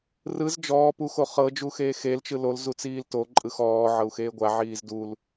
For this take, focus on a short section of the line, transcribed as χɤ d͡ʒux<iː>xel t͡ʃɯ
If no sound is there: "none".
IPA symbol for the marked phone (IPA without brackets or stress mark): eː